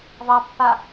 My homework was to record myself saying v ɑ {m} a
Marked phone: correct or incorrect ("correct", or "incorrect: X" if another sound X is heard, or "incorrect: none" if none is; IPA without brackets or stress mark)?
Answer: incorrect: pː